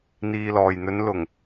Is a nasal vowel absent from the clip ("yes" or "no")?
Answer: yes